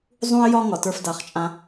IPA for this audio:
zˤũ˦ɪ̯jɒ˦ ŋɒ˨tə˞˦fda˨˦χt͡ʃʼã˦

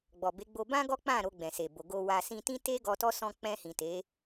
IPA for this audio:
ɡ͡bɔ˨be˨˦ ɡ͡bo˧bã˦ɡɔ˦k͡pã˦˨ ɾo˧ɡ͡bɛ̃˨se˨bo˨ ɡo˨wa˨ sĩ˧tĩ˦ te˦ ɡɔ˧tɔ˦sɔ̃˧ k͡pɛ̃˧hĩ˨te˨˦

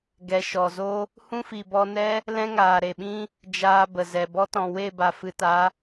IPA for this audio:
ɡɛ˨ ʃɔ˨zo˦ | hũ˦fi˨bɔ˧nɛ˦ | lɛ̃˦ŋaː˨ɾe˨ɓĩ˦ | d͡ʒaː˧ bə˨zɛ˨bɔ˦ tɔ̃˨we˦˨ba˨ fɨ˨ta˨˦

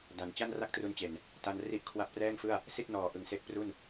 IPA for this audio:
da˨˩n t͡ɕa˥˩nra˥˩k̚tru˧nt͡ɕe˨˩n | ta˧n ri˦˥ʔkʰwa˦˥p̚rɛː˥˩ŋfɯ˥˩a̯ | si˥˩t̚ nɔː˨˩ ʔɯ˨˩ŋse˦˥k̚pru˥˩n

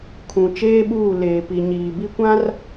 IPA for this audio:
kʰũ˨ t͡ʃeː˦ɓuː˦˨ leː˨pi˨ɲiː˨bi˦ kʷã˦r

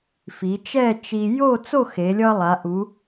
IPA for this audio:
fi˩˧ t͡ʃɛ˥˧t͡ʃi˧ jo˥˧t͡so˥˧ xe˩˧lʲʌ˧ lˠa˩˧ʔu˩˧

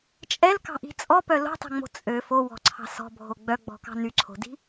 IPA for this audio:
t͡ʃʼɛlkɑ̤ʔi̤ t͡sʼɔpœ lo̤tˤɛ̤ŋ͡mo̤ t͡sʼø fowɔ̤ǀʰɑ̤ sɔ̤bʱo ɡ͡bœɡ͡bɔ̤kɑ̤ nyǀʰo̤di̤

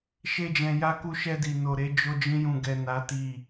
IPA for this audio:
ʃe˦d͡ʒɛ̃˧ja˦ku˦ ʃɛ˧di˨no˨ɾe˨˦ d͡ʒo˧d͡ʒĩ˧jũ˨ɡɛ˨ na˨˦ti˦˨

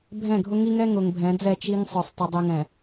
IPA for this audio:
bʱɛ̃˦˨ɡʱʊ˦ŋi˦ŋɛ˦ ŋʊ˨ŋbʱɛ̃˨˦d͡zɛ˦˨ t͡ʃi˦ŋ sˤə˞˨sˤtˤə˨dˤi˨ ŋɛ̃˨

